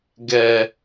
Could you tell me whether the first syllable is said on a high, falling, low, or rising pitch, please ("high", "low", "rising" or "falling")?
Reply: low